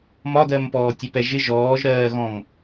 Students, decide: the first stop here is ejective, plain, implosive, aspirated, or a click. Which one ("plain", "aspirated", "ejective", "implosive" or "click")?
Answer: plain